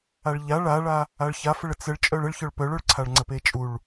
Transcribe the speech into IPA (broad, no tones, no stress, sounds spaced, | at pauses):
a ɭ ʎ a ɭ a ɭ a | a ɭ ç a f ə ɭ ə t͡s ə ɭ t͡ʃʼ œ ɭ ə ɭ ç œ ɭ p œ ɭ œ ɭ ǀʰ a ɭ ŋ͡ǀ ə p e t͡ʃʼ u ɭ